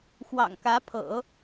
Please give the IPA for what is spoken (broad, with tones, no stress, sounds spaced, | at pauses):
x w ɑ̰˨˩ ŋ k ä˧˥ pʰ ɤ̰˨˩˦